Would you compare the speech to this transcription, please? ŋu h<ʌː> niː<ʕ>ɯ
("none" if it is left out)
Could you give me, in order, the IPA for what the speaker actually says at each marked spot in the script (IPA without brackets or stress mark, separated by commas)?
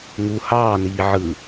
ɑː, ʕ